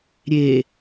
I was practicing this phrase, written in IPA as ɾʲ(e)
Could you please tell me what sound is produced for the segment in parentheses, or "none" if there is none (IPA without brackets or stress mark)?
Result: e